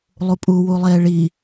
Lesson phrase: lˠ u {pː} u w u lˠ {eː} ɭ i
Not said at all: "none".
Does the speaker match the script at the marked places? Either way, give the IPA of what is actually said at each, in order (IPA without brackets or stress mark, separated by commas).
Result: pʼ, eː